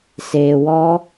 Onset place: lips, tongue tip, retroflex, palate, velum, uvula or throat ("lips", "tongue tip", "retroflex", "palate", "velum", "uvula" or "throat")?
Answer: tongue tip